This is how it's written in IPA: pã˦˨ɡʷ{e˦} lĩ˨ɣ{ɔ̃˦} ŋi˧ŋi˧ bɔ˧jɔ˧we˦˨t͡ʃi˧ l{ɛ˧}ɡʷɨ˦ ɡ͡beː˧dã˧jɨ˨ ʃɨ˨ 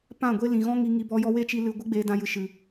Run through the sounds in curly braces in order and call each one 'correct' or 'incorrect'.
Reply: correct, correct, incorrect

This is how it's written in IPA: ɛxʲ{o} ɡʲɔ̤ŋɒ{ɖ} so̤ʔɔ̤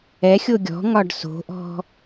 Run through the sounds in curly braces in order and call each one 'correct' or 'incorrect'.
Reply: correct, correct

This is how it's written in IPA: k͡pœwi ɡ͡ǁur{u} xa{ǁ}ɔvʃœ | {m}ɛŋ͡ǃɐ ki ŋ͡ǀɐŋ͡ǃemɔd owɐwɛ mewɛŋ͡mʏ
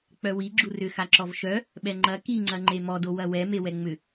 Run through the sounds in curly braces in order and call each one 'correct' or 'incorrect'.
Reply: incorrect, correct, incorrect

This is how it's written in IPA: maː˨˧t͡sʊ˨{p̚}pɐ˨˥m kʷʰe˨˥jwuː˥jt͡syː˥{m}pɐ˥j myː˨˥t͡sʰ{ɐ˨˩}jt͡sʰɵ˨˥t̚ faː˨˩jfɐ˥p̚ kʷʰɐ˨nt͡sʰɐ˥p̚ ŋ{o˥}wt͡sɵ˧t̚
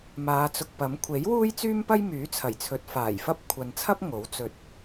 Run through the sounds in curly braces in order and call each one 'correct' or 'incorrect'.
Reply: incorrect, correct, correct, incorrect

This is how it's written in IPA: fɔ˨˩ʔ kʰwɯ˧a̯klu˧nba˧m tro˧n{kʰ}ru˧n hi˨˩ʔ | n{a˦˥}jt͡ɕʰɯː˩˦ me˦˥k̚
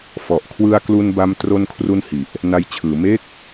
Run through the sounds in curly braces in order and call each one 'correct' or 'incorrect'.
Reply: correct, incorrect

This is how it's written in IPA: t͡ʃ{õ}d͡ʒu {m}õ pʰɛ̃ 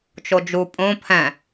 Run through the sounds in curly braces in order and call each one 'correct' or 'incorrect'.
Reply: incorrect, incorrect

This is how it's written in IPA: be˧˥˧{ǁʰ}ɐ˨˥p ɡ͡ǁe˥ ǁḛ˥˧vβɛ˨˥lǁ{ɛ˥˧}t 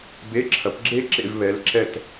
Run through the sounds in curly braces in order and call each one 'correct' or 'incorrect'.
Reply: correct, correct

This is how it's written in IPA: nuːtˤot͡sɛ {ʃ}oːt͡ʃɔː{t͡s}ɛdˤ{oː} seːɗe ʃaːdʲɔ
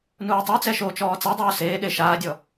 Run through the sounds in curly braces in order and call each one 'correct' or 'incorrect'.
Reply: correct, correct, correct

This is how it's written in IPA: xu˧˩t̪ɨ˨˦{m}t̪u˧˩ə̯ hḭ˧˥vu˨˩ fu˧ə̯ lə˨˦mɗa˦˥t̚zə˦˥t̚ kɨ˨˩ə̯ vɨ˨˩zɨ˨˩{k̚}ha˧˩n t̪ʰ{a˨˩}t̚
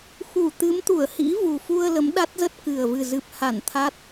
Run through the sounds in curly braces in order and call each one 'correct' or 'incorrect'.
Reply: correct, incorrect, incorrect

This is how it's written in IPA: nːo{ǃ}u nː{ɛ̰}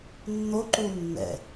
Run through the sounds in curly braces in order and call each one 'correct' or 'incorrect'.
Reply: correct, correct

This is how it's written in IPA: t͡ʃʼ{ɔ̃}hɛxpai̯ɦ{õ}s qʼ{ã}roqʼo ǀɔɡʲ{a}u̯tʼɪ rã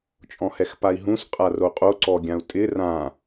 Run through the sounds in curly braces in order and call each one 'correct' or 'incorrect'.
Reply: correct, incorrect, incorrect, incorrect

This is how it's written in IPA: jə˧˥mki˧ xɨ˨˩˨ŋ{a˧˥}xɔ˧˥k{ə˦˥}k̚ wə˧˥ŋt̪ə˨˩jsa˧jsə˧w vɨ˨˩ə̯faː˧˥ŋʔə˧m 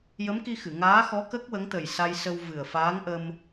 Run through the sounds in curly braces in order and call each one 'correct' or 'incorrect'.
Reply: incorrect, correct

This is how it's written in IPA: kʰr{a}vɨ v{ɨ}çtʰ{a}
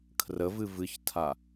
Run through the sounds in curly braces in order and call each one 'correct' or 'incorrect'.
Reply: incorrect, correct, correct

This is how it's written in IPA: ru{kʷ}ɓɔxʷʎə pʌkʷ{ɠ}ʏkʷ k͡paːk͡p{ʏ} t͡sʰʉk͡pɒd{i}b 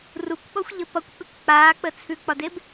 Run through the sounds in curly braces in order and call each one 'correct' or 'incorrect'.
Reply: correct, incorrect, incorrect, incorrect

